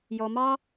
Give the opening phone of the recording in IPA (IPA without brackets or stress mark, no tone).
j